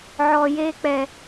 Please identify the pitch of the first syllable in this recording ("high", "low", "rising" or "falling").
low